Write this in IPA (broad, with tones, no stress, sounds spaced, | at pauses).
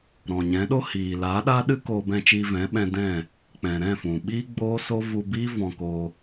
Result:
ɾ ɔ̃˨ ɲ ɛ̃˨˦ ɗ o˦ h iː˨ l aː˨˦ ɗ aː˦ ɗ ɨ˦ k oː˧ b ɛ̃˧ t͡ʃ iː˧ v ɛ̃˨˦ ɓ ɛ̃˧ d ɛ̃˦˨ | k͡p ɛ̃˨ ɾ ɛ̃˦˨ f ũ˨ ɓ iː˦ ɡ͡b oː˦ s o˦ v u˧ b iː˦ v ɔ̃˧ k oː˧